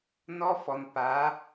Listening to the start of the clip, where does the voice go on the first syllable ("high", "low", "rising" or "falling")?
high